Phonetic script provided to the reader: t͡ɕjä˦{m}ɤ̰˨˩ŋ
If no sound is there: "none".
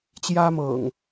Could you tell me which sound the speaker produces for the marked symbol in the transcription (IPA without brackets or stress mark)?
m